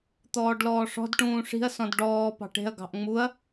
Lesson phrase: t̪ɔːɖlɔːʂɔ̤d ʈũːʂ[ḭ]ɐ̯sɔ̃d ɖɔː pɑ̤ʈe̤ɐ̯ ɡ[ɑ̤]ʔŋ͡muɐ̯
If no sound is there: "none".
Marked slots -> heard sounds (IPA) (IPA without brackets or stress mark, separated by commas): i̤, ɑ̤